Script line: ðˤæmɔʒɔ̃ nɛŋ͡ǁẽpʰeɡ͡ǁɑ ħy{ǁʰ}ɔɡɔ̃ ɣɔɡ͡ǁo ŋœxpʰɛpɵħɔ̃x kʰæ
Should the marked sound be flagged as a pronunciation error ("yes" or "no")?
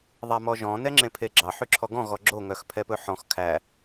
no